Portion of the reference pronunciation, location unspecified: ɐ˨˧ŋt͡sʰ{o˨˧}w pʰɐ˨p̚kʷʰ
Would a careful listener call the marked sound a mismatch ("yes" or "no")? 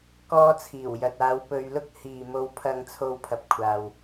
no